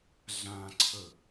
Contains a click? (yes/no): yes